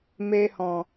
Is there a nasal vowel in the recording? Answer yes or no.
yes